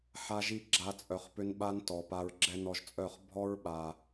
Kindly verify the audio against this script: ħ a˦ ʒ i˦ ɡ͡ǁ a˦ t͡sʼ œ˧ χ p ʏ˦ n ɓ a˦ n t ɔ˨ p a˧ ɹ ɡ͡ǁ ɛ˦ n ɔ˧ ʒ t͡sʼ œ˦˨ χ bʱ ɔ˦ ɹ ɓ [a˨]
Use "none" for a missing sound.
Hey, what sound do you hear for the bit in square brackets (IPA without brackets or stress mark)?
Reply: a˨